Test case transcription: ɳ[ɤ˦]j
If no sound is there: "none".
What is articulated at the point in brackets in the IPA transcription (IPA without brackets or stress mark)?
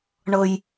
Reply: ɤ˦